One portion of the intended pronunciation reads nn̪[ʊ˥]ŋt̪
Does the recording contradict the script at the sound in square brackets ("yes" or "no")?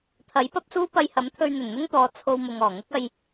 no